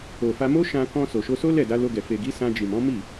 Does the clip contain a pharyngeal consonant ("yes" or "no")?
no